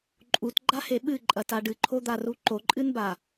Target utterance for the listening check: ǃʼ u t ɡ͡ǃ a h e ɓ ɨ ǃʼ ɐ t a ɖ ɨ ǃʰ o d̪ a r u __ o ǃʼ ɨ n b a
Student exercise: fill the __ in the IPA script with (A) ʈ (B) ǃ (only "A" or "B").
B